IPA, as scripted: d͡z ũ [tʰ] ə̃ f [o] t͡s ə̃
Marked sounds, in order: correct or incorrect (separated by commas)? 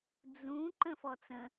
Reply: incorrect, incorrect